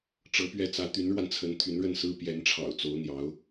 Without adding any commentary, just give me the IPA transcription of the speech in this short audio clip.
ʈ͡ʂ ɤ˧˥ p ɥ ɛ˥˩ t͡s ä˧˥ t̪ y˧˥ n ɻ w a˧ n t͡sʰ ə˧˥ n t̪ʰ y˧˥ n ɻ ə˥˩ n s ɹ̩˥ p j ɛ˧˥ n ʈ͡ʂʰ ɑ̰˨˩ ʊ̯ t͡s o˧˥ ʊ̯ n̪ j ɑ˧˥ ʊ̯

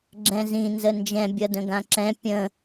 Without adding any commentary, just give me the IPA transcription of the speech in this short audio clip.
ɡ͡ǁ ɛ̃ z ĩ n z ə n d͡ʒ ɛ̃ bʲ ʌ d ə̃ ɡ ã ǁ ɛ̃ pʲ ə̃

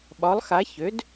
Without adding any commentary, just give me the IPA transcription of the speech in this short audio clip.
ɓ ɒ˩˥ lˠ x a˩˥ ç ø˩˥ d

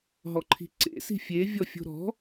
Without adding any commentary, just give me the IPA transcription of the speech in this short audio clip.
ɦ ɔ ǃʰ i̤ ǀ ḛ s i̤ fʲ e vʲ ɔ fʲ o̤ ɾ ɔ̤

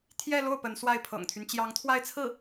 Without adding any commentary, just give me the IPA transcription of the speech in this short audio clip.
t̪ʰ j ɛ˥˧ l o˥˩ ʊ̯ p ə˧˥ n s w a˥˩ ɪ̯ pʰ ɤ̰˨˩ ŋ t̪ʰ y˦ n t͡ɕ j ɑ˧˥ ŋ t̪ʰ w a˥˧ ɪ̯ t͡sʰ ɹ̩˥˩

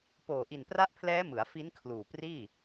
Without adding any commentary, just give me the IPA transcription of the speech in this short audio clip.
p oː˨˩ ʔ i˨˩ n p r a˦˥ ʔ pʰ l ɛː˦˥ m ɯ˩˦ a̯ f i˦˥ n kʰ l uː˨˩ p r iː˥˩

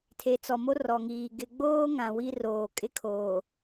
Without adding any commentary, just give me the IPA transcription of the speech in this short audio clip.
tʰ e˨ t͡s ɔ˨ m o˦ r ɔ˨ ŋ iː˨ ɡ ɪ˨ ɡ͡b oː˦ ŋ ã˨ w i˦ r oː˨ kʼ ɪ˦ kʰ oː˨

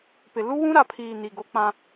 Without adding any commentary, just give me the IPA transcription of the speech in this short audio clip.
p ɪ˨ l u˦ w ũ˦ ɾ a˨ pʰ iː˨ n i˨ ɡ o˦ k͡p ã˦

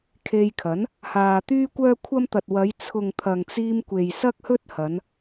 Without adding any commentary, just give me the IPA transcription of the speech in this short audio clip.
kʰ e˧ j kʰ ɐ˨˥ n | h aː˨ t̪ yː˥ kʷ œː˥ kʷʰ ɐ˥ m t̪ ɐ˨ t̚ w ɐ˨˧ j t͡sʰ ʊ˨ ŋ t̪ʰ ɐ˨ ŋ t͡s iː˧ m kʷ e˨ j s ɐ˥ k̚ h ɵ˥ t̚ h ɐ˨˧ n

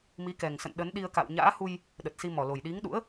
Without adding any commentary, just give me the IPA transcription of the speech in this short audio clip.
m i˨˦ k ɛ˨˩ ŋ s ə̰˧˨ n ɗ ə˨˦ n ɗ i˧ ə̯ k a̰˧˨ w ɲ a̰ː˧˥ h u˧ j | ɗ ə˨˩ t̚ s i˧ m ɔ˧˩ l o˨˩ j ɗ i˨˦ ŋ ɗ ṵ˧˥ ə̯

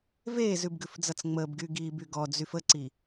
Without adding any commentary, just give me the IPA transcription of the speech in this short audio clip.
v eː z ʉ b ɡ ʉ f d͡z ʌ t͡s ŋ͡m əː b ɡ y ɡ iː b y ɡ ɔ d͡z y f ə ǀ i

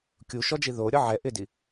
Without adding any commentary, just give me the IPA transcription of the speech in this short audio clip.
kʲ u ʃ ɔ d͡ʒ i ð o ɾʲ ɔ ʕ ɛ ʔ ɪ d i

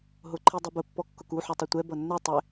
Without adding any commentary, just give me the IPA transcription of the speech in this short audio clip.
ɦ ʊ ǃʰ i dˤ ʊ b ə pː ɔ kː ʊ k u ħ u tˤ ʌ tʷ ɛ b ʌ nː ɛ tˤ ɪ

